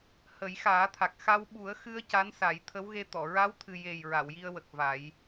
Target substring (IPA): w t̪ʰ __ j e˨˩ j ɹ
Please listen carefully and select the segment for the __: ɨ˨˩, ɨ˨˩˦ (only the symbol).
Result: ɨ˨˩